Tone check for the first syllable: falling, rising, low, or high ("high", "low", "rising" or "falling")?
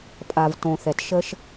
low